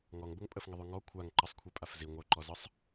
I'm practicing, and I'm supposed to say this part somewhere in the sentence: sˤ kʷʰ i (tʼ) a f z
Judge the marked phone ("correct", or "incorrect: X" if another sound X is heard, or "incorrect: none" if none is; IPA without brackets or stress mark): incorrect: pʼ